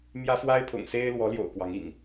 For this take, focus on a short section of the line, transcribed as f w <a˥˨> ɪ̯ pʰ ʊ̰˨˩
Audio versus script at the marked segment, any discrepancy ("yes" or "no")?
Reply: yes